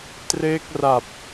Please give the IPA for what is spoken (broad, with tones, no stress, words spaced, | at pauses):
treː˦˥k̚ra˨˩p̚